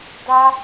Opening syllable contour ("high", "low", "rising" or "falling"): high